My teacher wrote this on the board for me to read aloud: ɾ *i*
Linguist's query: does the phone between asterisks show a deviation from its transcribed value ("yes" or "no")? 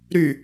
yes